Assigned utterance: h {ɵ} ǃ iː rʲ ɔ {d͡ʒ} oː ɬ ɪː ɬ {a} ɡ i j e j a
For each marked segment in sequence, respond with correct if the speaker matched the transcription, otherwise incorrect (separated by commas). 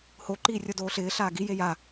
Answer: incorrect, incorrect, incorrect